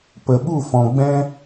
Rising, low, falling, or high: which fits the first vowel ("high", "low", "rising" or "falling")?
low